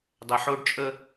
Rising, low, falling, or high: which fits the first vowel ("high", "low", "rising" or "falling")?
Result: low